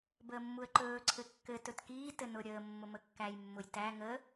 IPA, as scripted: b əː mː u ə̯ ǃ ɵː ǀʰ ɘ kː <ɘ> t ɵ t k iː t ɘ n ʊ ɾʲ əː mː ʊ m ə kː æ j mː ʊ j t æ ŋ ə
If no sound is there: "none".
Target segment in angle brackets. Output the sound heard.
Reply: ɘ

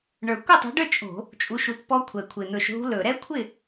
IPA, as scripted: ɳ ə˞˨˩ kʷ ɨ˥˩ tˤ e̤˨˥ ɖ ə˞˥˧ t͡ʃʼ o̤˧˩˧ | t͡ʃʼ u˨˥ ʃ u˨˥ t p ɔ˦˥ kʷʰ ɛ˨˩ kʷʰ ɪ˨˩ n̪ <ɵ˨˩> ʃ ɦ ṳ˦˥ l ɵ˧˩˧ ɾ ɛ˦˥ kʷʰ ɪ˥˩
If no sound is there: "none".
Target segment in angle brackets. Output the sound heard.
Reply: ɵ˨˩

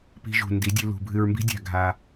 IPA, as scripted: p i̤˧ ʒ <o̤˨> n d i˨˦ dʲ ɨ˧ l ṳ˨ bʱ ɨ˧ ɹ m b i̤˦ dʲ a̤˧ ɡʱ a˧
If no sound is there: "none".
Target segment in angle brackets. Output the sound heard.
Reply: ṳ˨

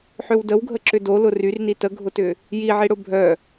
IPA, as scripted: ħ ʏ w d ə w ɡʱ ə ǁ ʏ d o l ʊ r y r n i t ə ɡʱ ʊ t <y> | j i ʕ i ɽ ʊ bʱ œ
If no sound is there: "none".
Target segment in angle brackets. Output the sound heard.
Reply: ʏ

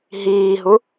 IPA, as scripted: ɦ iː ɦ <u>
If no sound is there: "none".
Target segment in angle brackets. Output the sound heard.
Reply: u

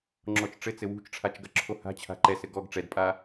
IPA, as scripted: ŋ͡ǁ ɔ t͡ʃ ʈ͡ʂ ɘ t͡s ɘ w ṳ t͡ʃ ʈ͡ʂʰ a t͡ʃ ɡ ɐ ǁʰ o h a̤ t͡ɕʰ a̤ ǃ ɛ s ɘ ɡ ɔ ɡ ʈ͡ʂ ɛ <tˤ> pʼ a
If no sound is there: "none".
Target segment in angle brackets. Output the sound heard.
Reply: d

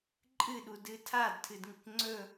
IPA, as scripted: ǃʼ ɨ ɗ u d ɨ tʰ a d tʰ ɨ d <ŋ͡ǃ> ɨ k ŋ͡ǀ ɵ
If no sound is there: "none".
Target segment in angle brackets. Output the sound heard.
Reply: ŋ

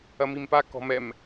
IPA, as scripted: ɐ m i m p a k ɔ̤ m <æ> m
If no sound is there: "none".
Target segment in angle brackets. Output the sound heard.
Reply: ɛ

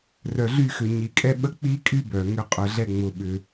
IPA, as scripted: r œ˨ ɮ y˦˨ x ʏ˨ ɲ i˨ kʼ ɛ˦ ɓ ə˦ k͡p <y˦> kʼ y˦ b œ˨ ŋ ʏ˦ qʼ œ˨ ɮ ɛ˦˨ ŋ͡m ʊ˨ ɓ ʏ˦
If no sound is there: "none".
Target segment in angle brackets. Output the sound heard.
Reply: i˦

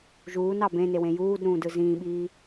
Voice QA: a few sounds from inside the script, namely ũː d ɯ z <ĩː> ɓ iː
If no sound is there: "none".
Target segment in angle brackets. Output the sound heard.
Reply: ĩː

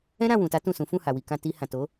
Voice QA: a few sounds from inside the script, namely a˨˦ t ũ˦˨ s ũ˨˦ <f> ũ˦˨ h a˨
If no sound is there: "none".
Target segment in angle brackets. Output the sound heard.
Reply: f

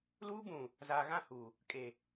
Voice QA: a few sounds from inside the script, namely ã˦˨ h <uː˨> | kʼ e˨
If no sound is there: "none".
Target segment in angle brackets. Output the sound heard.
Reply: uː˨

